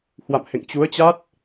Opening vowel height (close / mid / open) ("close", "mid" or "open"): open